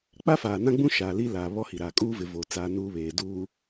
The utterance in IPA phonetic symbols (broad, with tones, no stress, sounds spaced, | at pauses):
k͡p a˦ f aː˨ n ã˦ ɡ͡b ũ˦ ʃ aː˨ l iː˦ l aː˨ β ɔ˦ h i˨ ɾ aː˨ kʼ uː˦ v ɪ˨ v o˨ t͡s aː˦ n uː˦ β eː˨ d uː˨